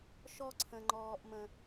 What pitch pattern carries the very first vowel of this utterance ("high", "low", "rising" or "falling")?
high